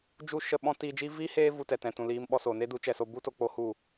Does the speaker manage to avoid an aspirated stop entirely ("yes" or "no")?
yes